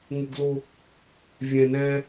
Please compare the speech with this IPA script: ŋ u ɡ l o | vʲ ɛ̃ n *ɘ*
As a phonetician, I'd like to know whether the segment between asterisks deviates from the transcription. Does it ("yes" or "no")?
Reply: yes